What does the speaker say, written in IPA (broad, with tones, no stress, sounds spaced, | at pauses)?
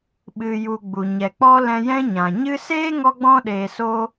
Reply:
ɓ ɨ˨ j u˨ ɡ͡b u˨ ɲ ɛ˨ k͡p ɔ˦ l ɛ̃˧ j ɛ̃˦ ɲ ã˨ ɲ ɨ˧ s eː˦ ŋ ɔ˧ ɡ͡b ɔ̃˧ ɗ eː˨ s o˧